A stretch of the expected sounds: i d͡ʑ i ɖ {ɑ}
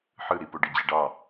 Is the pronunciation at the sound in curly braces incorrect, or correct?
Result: correct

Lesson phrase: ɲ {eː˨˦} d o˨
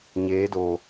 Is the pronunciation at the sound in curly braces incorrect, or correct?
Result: correct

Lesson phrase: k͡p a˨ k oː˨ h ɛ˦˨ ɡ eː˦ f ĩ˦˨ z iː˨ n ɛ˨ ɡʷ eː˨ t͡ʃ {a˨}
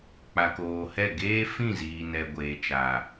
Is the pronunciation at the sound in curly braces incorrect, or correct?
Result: correct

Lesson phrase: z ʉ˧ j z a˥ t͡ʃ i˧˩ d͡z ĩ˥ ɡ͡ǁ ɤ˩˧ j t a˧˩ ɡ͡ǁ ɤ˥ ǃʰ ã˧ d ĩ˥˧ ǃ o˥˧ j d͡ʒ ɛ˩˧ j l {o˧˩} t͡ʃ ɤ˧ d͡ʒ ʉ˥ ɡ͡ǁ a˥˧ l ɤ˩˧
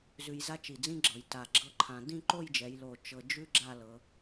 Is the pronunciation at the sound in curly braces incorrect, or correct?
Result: correct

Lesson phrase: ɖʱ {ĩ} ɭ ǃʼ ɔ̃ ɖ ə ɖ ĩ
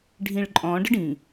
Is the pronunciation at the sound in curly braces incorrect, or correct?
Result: correct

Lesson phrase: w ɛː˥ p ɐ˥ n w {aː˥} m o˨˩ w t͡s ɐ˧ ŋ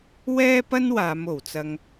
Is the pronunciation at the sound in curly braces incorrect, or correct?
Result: incorrect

